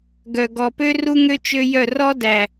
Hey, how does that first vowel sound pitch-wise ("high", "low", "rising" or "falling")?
low